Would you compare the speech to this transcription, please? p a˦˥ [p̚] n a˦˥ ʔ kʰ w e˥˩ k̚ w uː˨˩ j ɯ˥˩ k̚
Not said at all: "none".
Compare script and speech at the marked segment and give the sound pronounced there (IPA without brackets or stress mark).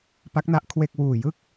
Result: k̚